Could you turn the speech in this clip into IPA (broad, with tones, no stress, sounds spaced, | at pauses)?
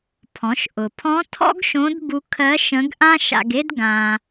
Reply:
pʰ ɔ̃˩˧ ʃ ʔ ʊ˩ pʰ ɔ̃˧˥ tʰ ɔ̰˥ ɡ ʃ õ˧˥ d b u˧ kʰ ɜ˧˥ ʃ ə̃˧˥ ɡ ʔ ã˥ ʃ a̰˧ ɡ e˥ d ɡ ã˧